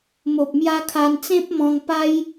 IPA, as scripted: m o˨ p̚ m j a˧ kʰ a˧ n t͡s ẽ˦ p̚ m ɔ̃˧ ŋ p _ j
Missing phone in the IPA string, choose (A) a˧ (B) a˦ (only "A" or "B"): B